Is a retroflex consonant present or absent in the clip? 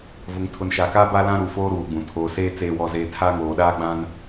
absent